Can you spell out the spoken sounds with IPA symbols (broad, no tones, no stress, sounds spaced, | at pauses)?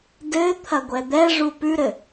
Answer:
d ɘ t̪ʰ ɐ ɡʷ ɛ d̪ ɛ ʐ u p ʉ ɾ ɘ